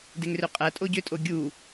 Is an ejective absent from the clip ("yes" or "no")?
no